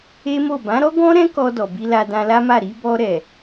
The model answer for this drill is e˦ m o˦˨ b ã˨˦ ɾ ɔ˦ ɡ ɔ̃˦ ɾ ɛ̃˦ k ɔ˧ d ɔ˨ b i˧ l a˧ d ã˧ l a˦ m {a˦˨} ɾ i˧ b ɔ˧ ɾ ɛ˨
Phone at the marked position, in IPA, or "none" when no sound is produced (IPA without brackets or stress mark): a˦˨